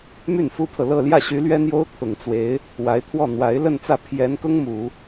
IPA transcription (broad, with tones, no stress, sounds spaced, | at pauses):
m y˥˩ n f u˥ pʰ ɤ˨ l ɤ˥˧ l j ä˥˩ ɕ y˧˥ l ɥ ɛ˥ n̪ j o˥ ʊ̯ t̪ʰ ʊ˨˩ ŋ t͡s w e˧˥ ɪ̯ | w a˧˥ ɪ̯ t̪ʰ w ɔ˥˩ n̪ w a˧˥ ɪ̯ l ə˥˧ n t͡s ä˥˩ pʰ j ɛ˧˥ n k ʊ˥ ŋ m u˨˩˦